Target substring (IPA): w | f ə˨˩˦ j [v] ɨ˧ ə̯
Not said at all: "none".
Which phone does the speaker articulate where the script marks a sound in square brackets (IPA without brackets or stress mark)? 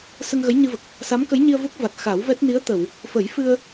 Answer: f